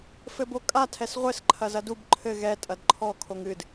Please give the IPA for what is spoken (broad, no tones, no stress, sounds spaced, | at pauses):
f ɘ b o kʼ a tʰ ɛ s ʁʷ ɘ s ǃʰ ɐ z ɐ d u b ǃʰ ɘ ɣ ɛ tʼ ɐ d ǃʰ ɔ kʰ o ŋ ɨ d